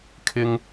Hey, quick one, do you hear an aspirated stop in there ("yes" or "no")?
yes